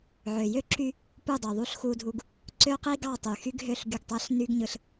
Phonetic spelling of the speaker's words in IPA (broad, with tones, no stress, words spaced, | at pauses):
ʕø˨ jø˦ǁy˦ | pu˦˨dˤø˨ ðˤu˦ɬxu˦dʱu˦ɡ | ǀø˦qi˦ ɡɑ˦˨tˤy˨xy˦ɡɦø˦˨ɬ ɡy˦˨ɡtˤæ˦ɬ ny˦ɡ ɲɯ˦ɬ